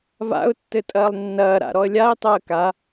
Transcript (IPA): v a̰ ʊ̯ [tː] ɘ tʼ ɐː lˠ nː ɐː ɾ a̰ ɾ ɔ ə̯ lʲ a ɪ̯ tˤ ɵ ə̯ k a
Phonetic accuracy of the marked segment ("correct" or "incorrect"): correct